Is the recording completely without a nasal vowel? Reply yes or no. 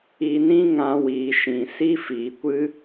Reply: no